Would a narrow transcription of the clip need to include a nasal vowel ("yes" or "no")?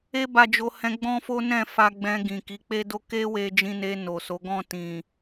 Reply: yes